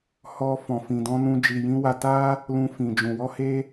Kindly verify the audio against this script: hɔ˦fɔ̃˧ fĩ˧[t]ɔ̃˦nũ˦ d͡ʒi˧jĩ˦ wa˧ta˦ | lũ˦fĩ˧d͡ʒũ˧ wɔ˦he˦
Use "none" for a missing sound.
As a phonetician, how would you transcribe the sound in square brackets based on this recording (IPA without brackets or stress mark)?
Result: d